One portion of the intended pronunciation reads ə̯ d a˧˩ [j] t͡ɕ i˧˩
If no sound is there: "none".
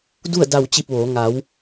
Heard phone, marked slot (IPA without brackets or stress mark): w